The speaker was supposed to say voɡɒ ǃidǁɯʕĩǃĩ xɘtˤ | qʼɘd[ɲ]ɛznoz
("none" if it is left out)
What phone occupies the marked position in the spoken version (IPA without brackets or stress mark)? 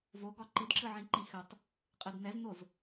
n